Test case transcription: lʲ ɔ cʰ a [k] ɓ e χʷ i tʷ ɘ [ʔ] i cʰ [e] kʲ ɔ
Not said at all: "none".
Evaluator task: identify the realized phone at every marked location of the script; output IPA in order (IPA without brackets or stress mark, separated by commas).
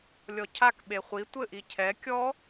k, ʔ, ɛ